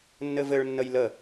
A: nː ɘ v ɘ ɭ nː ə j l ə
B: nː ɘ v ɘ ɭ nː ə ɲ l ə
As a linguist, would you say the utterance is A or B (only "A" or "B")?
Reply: A